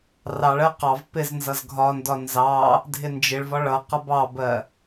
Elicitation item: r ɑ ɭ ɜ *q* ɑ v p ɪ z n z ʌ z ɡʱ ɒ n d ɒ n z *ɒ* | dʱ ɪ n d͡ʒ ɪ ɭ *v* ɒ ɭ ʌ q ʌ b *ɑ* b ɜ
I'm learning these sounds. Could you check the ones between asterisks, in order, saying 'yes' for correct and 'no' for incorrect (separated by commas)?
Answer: yes, no, yes, yes